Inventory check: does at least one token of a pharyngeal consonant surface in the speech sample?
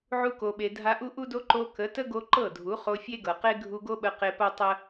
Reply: yes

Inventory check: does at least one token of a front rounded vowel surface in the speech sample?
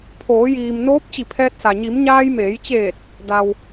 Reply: no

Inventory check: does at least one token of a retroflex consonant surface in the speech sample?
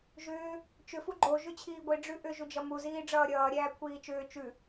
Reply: yes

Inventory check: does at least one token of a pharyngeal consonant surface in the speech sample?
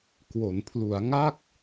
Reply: no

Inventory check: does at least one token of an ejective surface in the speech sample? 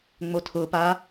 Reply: no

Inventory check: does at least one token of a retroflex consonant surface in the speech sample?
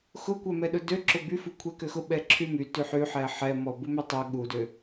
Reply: no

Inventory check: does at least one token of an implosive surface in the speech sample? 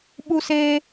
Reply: yes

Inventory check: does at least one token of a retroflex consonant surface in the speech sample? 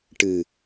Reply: yes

